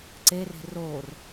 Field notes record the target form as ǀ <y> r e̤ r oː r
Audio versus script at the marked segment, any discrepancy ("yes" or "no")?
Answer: yes